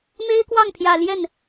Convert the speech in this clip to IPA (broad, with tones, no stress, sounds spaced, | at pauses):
m e˥ ɪ̯ k w ɑ˥˩ ŋ pʰ j ä˨˩ l j ɛ˥˩ n